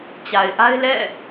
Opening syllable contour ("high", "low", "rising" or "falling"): low